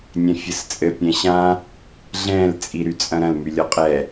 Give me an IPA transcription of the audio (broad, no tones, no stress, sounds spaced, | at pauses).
nʲ ɛ̃ fʲ ɘ s t͡sʼ ɘ pʲ ɛ̃ ɕ ã | ɮ ɛ̃ l t͡sʼ i ɾ y t͡sʼ ɐ̃ ɾ ɐ̃ l m y lʲ ɔ qʼ ɛ